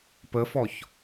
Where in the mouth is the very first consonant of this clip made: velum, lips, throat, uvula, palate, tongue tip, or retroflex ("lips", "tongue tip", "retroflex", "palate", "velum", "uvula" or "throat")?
lips